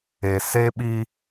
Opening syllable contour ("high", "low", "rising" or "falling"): low